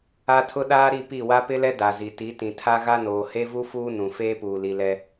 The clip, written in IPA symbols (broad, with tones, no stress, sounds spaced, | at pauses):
a˦ tʰ ʊ˦ ɗ aː˦ ɾ i˦˨ p i˦˨ w a˦ p ɪ˦ l ɛ˦ d a˨ z i˨ t i˨˦ t ĩ˨ tʰ a˦ ɣ a˦ n oː˨ h e˦ v u˦ f uː˦ n ũ˨ f eː˦ p uː˨ l i˨ l ɛ˦